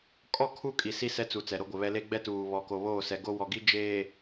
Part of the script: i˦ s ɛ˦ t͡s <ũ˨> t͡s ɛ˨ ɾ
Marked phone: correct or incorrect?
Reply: incorrect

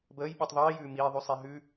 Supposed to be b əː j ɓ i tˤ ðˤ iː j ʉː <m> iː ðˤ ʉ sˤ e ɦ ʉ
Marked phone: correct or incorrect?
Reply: correct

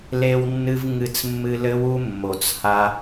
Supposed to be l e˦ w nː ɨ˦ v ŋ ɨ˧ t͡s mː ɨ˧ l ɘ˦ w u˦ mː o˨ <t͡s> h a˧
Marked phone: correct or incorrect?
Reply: correct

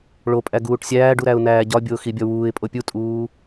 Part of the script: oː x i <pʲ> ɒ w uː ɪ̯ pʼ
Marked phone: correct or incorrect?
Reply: incorrect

